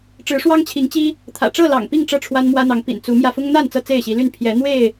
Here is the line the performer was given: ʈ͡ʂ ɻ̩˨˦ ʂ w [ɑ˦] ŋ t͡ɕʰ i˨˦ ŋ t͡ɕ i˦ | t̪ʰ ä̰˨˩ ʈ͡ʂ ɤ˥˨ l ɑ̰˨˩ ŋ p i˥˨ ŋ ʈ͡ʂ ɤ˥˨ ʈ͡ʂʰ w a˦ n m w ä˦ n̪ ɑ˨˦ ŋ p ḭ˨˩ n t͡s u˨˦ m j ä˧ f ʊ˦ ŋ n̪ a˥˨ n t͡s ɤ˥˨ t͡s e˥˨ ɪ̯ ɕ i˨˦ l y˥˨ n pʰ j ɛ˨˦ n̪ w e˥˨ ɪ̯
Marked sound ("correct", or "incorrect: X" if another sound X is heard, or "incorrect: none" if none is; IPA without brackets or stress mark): correct